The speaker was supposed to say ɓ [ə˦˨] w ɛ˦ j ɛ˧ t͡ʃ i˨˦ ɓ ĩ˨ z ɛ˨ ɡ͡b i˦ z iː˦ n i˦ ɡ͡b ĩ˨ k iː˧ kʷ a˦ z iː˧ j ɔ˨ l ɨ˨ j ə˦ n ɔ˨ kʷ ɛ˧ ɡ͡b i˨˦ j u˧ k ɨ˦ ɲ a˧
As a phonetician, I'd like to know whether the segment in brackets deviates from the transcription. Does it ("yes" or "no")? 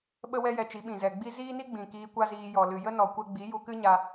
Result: yes